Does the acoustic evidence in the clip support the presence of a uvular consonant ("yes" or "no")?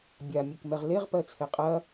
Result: yes